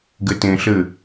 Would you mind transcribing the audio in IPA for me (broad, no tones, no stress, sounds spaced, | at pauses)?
ɡ ɘ t ẽ ɬ ɘ